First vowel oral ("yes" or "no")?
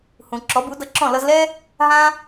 no